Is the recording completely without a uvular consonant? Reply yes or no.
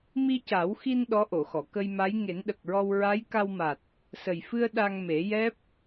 yes